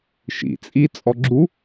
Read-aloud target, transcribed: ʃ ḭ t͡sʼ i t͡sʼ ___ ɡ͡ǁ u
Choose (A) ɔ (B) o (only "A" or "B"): A